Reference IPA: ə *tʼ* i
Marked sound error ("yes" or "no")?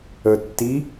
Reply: yes